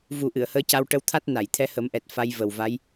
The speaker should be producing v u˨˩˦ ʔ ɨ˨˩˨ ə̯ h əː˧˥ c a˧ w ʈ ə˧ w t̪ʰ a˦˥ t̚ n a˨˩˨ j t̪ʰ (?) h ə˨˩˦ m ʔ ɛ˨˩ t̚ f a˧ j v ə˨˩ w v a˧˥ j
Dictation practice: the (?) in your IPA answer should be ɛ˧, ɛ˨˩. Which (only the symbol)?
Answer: ɛ˧